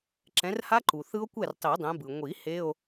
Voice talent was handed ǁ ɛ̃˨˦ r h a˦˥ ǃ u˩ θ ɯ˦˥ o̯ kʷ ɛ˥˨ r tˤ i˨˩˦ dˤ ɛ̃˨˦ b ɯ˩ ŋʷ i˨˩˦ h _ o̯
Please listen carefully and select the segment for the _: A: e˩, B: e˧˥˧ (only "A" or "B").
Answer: B